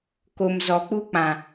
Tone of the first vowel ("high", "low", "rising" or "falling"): low